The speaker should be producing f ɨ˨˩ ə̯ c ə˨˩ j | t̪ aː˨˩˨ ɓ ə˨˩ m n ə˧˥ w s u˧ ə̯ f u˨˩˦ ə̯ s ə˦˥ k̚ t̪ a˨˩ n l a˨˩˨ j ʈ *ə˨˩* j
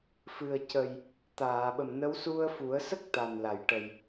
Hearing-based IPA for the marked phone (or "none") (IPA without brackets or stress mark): ə˨˩